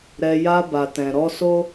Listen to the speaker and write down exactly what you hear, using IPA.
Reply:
ɾ ɛ˧ j a˧ b a˨ t ɛ̃˨ ɾ ɔ˧ s o˦

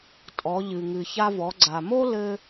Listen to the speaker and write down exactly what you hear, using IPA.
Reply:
tʼ ɔ˩˧ ʎ ɨ˩ ŋ ɨ˩ ç a˧ v ɔ˩˧ ɡ͡ǀ a˩ m o˥ l ɘ˧

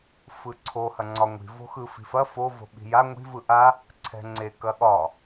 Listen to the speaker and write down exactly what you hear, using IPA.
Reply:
f ɯ ǀʰ o h ɐ ŋ͡ǀ ɒ ŋʷ i̤ v o̤ x ɯ f i̤ f ɐ f o v o̤ ɓ i̤ j a ŋʷ i̤ v ɯ ʔ a | ǀʰ ɛ̤ ŋ͡ǀ e k ɐ ɠ ɒ

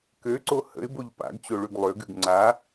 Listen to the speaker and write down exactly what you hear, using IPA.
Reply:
k ø ǀ o h ə̰ ɪ̯ b o ʎ p a̰ ɡ t͡ɕ o ɭ ʉ ɡ lˠ ø ɡ ʉ ɡ ŋ͡ǀ a

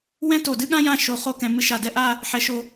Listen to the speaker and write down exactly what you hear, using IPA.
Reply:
w ɛ̃˥ t o˧˩ d ɨ˥ ɠ ã˥ j ã˥˧ ʃ o˧ χ o˥ k ɛ̃˧ m ɨ˧ ʃ a˧˩ d ɛ˥˧ ʔ a˥˧ | ħ ɛ˧ ʃ o˧

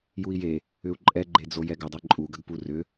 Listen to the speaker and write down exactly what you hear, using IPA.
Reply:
j u i̯ j e | ʏ u̯ ǃʼ ɛ ɡ͡ǃ e d͡z o j ɛ ɡ ʏ dˤ e ǃʼ u ɡ ə ɡ p u r ʏ

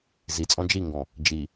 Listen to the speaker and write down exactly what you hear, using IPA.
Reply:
z i t͡sʼ ɔ̃ d͡ʒ i ŋ ɡ ɔ̃ | d͡ʒ i

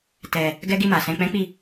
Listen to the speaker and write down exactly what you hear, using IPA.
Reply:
t ɛ˧ | ɡ ɛ˦ ɡ i˦˨ m a˨ s ɛ̃˧ k͡p ɛ̃˦ k͡p i˦˨

